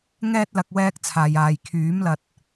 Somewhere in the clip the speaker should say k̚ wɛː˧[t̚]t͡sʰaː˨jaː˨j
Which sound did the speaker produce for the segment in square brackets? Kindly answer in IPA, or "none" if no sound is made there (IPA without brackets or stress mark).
k̚